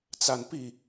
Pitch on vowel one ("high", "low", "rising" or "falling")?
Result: high